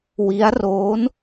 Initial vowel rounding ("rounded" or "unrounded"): unrounded